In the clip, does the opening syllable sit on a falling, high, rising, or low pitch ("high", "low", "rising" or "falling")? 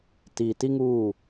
low